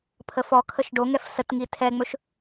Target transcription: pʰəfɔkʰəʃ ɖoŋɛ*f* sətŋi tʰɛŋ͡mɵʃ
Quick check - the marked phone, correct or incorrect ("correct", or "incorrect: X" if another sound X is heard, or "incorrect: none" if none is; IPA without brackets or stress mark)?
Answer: correct